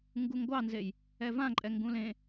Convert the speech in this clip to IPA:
ŋɡuŋɡʷɑnzej | ɛvãǃʼɛ ŋɡũlẽ

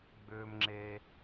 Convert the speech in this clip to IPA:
ɡ͡bʏː˦mŋ͡ǁe˦

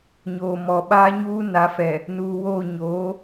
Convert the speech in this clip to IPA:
ɲoː˨mɔ˨ ɓaː˦ɲuː˦ na˨˦fɛ˨ | nuː˨woː˦˨ ɲoː˨˦

